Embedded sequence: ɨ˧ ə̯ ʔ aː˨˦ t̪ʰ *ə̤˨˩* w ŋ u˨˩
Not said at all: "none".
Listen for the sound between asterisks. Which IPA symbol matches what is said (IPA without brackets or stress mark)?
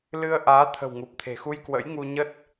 ə̤˨˩